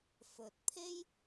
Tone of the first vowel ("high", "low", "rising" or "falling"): low